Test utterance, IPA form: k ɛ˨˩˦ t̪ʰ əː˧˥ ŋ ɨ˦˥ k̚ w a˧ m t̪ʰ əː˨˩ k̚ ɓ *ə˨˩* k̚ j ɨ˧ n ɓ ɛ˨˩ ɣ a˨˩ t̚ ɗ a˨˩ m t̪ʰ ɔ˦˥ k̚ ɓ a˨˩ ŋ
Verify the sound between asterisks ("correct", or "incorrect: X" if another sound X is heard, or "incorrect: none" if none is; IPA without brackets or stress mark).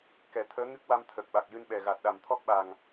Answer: incorrect: a˨˩